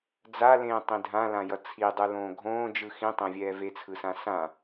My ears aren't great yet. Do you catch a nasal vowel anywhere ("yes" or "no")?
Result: yes